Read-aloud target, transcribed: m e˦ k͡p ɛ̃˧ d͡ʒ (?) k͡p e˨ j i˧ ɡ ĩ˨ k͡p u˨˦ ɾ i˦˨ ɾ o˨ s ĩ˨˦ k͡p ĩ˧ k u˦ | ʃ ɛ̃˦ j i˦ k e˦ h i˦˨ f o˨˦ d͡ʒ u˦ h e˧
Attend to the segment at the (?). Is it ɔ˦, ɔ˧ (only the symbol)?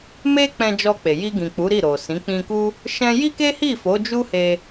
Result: ɔ˧